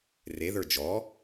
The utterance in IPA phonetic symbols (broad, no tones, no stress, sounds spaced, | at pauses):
r e ð ə˞ d͡ʒ ɔ